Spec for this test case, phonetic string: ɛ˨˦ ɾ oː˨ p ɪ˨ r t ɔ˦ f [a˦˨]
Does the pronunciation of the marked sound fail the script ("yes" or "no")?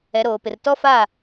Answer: no